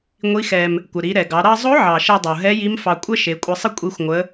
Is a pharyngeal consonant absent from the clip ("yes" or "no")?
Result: no